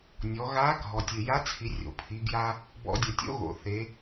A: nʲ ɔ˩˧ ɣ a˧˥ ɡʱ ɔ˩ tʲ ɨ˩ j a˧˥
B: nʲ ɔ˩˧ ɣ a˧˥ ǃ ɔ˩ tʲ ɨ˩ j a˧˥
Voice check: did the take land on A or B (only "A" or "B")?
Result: A